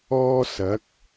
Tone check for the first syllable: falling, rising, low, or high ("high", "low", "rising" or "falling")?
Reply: high